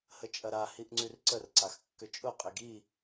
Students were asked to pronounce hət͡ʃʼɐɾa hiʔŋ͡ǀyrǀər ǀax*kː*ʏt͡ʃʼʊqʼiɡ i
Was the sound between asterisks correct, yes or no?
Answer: yes